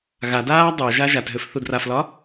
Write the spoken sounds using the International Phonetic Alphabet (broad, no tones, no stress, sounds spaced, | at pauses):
ɣ a d aː dˤ o ʒ a ʒ a t ɦ ʏ f θ u d r a f l ɒ